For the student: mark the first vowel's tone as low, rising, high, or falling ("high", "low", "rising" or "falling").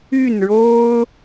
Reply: falling